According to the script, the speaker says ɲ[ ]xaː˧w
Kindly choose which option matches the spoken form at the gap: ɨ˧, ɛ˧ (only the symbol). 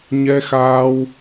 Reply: ɛ˧